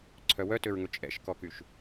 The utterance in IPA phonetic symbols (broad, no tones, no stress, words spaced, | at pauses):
ǀʰœwœtøɹŋɵ t͡ʃʼɛ̰ʃkɔkyʃ